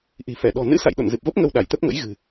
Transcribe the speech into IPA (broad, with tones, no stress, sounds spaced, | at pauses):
ʔ i̤˨˩ f ɛ˧˩ ɗ ɔ̤˨˩ n ɨ̰˧˥ s a̰˧˨ j ɗ o̰˧˨ n z ɨ˨˩ p̚ v ə˦˥ p̚ ŋ ə˧ w ɗ a˧˩ j t̪ ə˦˥ p̚ ŋ ə̰˧˥ j ɣ ɨ̤˨˩